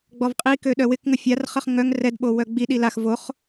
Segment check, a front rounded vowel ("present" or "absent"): present